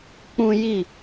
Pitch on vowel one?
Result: high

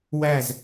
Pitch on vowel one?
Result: falling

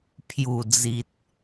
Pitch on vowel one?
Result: low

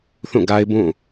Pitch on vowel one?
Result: falling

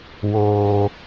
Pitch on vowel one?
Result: high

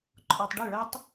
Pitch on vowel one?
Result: low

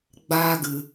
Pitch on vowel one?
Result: high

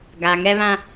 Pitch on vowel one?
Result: low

